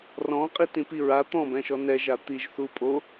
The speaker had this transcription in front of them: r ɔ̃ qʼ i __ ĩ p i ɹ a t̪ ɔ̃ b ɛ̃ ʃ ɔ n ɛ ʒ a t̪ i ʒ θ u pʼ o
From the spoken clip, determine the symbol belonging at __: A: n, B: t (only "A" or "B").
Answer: B